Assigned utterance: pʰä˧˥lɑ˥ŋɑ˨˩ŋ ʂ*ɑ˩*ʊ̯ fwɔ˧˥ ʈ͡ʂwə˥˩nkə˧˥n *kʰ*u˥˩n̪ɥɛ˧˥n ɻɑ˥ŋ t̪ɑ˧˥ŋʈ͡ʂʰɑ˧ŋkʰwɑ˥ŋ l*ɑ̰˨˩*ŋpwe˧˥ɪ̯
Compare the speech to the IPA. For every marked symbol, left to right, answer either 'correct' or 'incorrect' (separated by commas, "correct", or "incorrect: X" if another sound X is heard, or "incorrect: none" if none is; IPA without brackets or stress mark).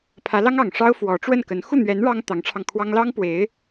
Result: incorrect: ɑ˥, incorrect: x, incorrect: ɑ˥